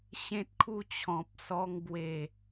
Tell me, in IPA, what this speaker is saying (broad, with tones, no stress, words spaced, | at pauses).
ɕẽ˦t̚kʰu˥˧t͡ɕʰɔ̃˨p̚sɔ˧ŋ bwe˨˩